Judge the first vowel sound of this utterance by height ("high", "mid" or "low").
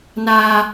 low